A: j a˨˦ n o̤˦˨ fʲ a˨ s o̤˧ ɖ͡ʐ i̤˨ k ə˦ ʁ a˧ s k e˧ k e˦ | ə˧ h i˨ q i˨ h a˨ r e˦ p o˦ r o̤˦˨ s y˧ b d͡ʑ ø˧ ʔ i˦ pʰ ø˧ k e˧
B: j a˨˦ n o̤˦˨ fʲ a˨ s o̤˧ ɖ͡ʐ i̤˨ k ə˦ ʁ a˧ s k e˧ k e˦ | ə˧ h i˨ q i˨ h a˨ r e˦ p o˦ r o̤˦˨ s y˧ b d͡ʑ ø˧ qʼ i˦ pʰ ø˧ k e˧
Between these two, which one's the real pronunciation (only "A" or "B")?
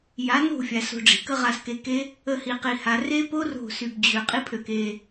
B